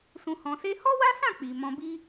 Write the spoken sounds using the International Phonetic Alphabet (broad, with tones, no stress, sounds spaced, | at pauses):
s ũ˧ h ɔ̃˧ s e˦ h ɔ˦ w a˦ s ã˦˨ k͡p i˨ m ɔ̃˧ b i˦